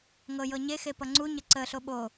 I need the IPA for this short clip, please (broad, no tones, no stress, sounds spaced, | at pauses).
ŋ ɤ j ɤ ɲ e x e p ʌ ŋ͡ǀ u ɲ ə ǀ ə ɬ o ɓ o